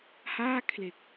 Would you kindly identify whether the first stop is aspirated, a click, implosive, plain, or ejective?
aspirated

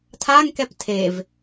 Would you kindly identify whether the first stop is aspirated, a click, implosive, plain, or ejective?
aspirated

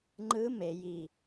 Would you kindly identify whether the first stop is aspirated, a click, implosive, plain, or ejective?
click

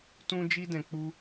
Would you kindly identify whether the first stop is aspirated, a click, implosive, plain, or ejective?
plain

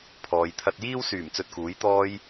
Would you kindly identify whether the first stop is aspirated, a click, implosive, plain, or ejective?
aspirated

